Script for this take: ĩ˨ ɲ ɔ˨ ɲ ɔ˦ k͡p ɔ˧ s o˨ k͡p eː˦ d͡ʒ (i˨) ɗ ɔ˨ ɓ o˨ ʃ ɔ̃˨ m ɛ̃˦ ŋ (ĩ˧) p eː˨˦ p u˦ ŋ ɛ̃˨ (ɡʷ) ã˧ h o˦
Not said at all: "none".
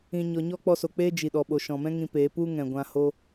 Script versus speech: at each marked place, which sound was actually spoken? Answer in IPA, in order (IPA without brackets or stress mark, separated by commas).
i˨, ĩ˧, ɡʷ